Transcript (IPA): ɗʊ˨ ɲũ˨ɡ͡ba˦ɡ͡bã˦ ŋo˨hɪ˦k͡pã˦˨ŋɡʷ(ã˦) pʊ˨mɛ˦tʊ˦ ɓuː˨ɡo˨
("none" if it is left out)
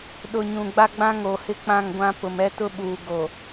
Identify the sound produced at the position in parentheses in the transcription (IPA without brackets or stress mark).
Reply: ã˦